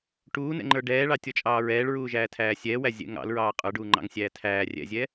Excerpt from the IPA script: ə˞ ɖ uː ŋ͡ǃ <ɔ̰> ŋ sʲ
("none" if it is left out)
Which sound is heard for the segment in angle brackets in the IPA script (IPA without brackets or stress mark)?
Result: ɑ̰